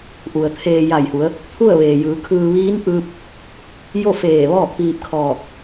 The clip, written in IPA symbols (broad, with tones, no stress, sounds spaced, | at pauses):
ʔ u˩ ə̯ t̪ʰ eː˧ j a˧˩ j h u˩˧ ə̯ | t̪ʰ u˥˨ ə̯ ʋ eː˩ j ɯː˩˧ kʰ ɯː˧ ʋ iː˧˥ n ʔ ɯː˧ p̚ | j o˥˨ f eː˧˩ ʋ ɔː˥˨ k̚ p iː˧ p̚ kʰ ɔː˧˩ k̚